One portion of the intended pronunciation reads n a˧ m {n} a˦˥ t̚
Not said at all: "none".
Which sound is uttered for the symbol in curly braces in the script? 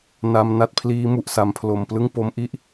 n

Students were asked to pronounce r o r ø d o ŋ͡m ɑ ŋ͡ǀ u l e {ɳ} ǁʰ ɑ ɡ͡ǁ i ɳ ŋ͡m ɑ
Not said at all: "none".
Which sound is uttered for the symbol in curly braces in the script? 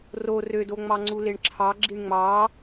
ɳ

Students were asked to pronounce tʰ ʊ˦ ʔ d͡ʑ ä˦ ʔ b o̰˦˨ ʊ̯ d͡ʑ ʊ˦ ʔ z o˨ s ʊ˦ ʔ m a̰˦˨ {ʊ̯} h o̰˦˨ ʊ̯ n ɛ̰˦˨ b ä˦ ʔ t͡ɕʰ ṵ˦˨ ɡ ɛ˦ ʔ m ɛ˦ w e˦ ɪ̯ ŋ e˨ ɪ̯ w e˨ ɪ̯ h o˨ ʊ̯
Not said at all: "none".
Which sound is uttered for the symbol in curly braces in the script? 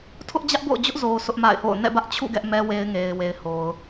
ɪ̯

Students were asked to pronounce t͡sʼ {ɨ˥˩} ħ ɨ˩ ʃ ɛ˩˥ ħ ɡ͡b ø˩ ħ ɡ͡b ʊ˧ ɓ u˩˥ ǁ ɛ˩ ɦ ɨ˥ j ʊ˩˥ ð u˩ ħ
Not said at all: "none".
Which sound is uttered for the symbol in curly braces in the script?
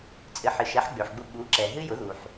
ɨ˩˥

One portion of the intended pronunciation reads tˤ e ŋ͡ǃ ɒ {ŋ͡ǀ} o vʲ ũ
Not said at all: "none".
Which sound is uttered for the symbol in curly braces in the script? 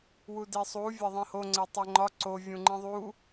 ǀ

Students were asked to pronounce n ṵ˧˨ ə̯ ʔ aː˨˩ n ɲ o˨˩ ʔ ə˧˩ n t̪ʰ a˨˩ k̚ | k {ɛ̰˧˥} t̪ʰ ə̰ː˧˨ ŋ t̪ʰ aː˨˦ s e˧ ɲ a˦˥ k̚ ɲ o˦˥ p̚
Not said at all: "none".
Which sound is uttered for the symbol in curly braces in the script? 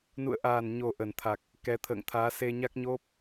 ɛ˨˦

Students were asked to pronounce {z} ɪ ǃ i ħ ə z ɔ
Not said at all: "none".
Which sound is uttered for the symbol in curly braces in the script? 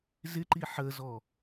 z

